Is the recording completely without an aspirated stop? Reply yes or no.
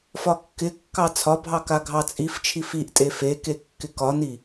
no